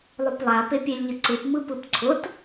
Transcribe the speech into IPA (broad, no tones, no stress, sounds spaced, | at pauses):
lˠ ʊ p lˠ a p e pʲ e lʲ ʎ ə ǀ ɯ p m ɯ p ɯ p ǀʰ ʊ t